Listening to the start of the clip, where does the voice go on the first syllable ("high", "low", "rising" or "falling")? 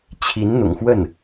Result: rising